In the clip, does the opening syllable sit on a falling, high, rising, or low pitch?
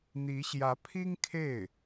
rising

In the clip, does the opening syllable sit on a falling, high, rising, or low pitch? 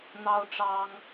high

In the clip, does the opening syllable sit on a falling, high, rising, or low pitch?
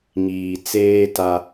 low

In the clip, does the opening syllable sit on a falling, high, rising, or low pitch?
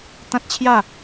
high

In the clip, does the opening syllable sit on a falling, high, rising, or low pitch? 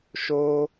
high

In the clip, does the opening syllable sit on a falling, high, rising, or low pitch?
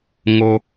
high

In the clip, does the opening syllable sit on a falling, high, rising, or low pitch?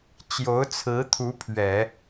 rising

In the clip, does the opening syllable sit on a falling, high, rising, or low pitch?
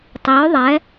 rising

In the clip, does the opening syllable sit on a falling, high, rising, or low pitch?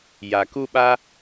low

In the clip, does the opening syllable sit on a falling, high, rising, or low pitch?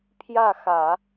falling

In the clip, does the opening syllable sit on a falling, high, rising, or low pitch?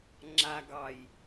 low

